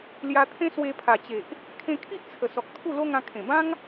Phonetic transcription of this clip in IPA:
l j a˧ t̪ʰ ẽ˦ s w e˧ pʰ a˨˩ t͡ɕ e˨ ʔ | kʰ ẽ˧ kʰ i˦ ʔ t͡sʰ ə˨˩ s ɔ˨ k̚ t̪ʰ u˥˧ l o˦ ŋ ã˧ kʰ ẽ˨˩ b ã˦ ŋ

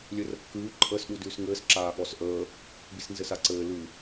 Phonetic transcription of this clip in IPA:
lʲ ɘ r ə kː ʉː ǃʼ əː s ɗ u d ʉː s ŋ ɘː s ǁ aː ɠ ɔ s ʔ əː | b i s n z ɘ s a ǀ ɘː l ʉ

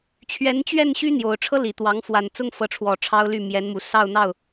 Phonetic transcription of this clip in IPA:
t͡ɕʰ ɥ ɛ˧˥ n t͡ɕ ɥ ɛ˥˩ n ɕ y˥ n̪ j o˨˩ ʊ̯ ʈ͡ʂʰ ɤ˥ l i˨˩ t̪ w ɑ˧˥ ŋ f w a˨˩ n t͡s ʊ˥ ŋ f ɤ˧˥ ʈ͡ʂʰ w ɔ˨˩ ʈ͡ʂʰ ɑ˥ ʊ̯ l y˥˩ m j ɛ˧˥ n m u˨˩ s ɑ˥˧ ʊ̯ n̪ ɑ˥˩ ʊ̯

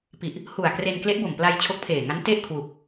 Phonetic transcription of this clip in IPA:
p i˨˩ ʔ | h u˨˩ a̯ k r e˧ n k l e˦˥ ʔ b o˨˩ m p l a˧ j t͡ɕʰ o˦˥ k̚ pʰ eː˨˩ ŋ a˦˥ n t e˥˩ ʔ kʰ w u˨˩ k̚

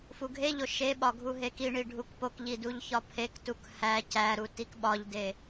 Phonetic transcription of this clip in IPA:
f u ɡʱ e ʎ o ʃ e ɓ ɒ ɡʱ u ɦ e k i ɳ i ɖʱ u k p o k ʎ i d u ʎ ç ɒ pʰ e k t u k h æ c æ ɾ u t i k ɓ ɒ ʎ d e

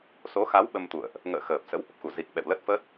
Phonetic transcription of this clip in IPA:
s o˨˦ x a˨˦ w ɓ ə˧ m t̪ ṵ˧˨ ə̯ ʔ | ŋ ə̰ː˧˨ x əː˨˩ p̚ s ə̰˧˥ w ʔ ə˨˩ p̚ x u˧˩ z i˨˩ k̚ ɓ ɛ̰˧˨ w l ə˦˥ t̚ f ə˦˥ t̚

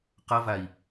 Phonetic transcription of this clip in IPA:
q ʌ v a i̯

